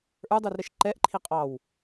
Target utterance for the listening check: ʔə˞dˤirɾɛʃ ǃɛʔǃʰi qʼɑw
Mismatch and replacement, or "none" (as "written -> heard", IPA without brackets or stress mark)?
none